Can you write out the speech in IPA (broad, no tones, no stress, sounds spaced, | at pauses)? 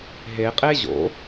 ɦ e qʼ e ʑ o̰